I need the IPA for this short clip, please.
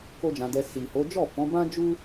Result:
k o˦ d͡ʒ ã˧ d ɛ˧ s i˨ h o˨˦ d͡ʒ ɔ˦˨ f ɔ̃˨˦ b ã˦ d͡ʒ u˦

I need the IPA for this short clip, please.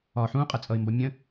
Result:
ɒ ħ ũ qʼ ə t͡sʼ ʌ ɪ̯ m b ʌ mʲ ə̃

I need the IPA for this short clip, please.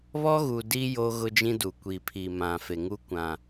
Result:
β ɔ˦ ɣ u˨ d i˦ j o˦ ɣ ʊ˦ d͡ʒ ĩ˦ d u˨ kʷ i˨ pʰ i˨ m ã˨ f e˨ ŋ u˦ kʷ ã˨

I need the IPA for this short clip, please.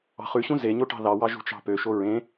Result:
ɑ̤ χ ʉ ɕ ũ z e ɲ o ʈ ɑ̤ ð ɑ w ɑ ʒ ṳ t͡ʃ ɑ̤ p ø ʃ o ɹ ẽ

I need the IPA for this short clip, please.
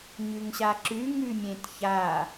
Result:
ɲ ʉ ŋ ɕ a ǁ ʉ ŋ ʉ mʲ ẽ t ç a

